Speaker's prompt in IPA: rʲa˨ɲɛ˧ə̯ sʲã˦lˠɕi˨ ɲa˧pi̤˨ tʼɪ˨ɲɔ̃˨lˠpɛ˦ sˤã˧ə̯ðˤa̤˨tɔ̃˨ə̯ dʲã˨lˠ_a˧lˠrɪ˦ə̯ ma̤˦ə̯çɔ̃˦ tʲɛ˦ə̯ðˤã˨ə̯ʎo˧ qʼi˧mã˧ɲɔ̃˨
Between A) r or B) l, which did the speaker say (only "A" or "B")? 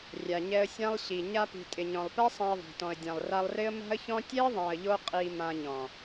A